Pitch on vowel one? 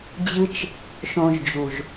high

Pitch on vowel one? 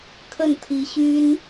falling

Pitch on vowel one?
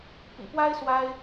low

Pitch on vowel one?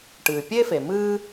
low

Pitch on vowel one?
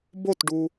falling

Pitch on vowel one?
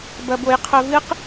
low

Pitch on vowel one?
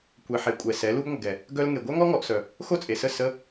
low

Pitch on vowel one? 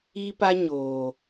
high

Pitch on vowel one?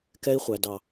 high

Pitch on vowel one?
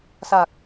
low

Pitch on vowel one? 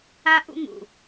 high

